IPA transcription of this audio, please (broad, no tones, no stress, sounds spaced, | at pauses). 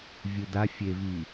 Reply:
vʲ ɯ d a fʲ e v i